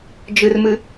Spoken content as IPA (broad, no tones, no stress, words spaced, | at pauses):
d͡ʒɨrmɨ